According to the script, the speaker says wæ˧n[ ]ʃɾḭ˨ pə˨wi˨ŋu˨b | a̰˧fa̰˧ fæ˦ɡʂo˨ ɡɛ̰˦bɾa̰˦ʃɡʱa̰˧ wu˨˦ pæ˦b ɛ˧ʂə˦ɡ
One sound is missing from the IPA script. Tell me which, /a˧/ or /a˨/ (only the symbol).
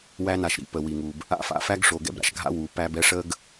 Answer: a˨